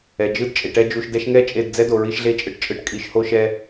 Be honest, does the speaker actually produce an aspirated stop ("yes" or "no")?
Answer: no